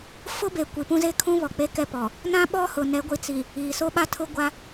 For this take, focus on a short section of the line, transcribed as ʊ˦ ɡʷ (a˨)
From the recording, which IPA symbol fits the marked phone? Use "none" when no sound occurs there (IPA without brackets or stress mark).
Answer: a˦